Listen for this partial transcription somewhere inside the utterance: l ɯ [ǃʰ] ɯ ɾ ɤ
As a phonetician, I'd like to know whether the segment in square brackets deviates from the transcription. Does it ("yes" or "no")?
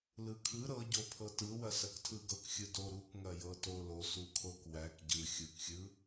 yes